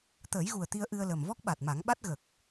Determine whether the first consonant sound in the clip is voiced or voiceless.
voiceless